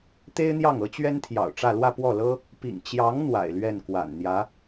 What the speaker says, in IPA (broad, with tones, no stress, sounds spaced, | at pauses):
t̪ e˥ ɪ̯ n̪ j ɑ˥˩ ŋ ɤ˧˥ t͡ɕ ɥ ɛ˥ n t̪ʰ j ɑ̰˨˩ ʊ̯ ʈ͡ʂ ä˥˧ l w ä˥˧ p w ɔ˥˩ l ɤ˥ | p ḭ˨˩ ŋ t͡ɕ j ɑ˧˥ ŋ n̪ w a̰˨˩ ɪ̯ l ɥ ɛ˥˩ n k w a̰˨˩ n n̪ j ä˧˥